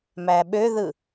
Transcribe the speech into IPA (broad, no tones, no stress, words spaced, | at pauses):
mæɓøðɯ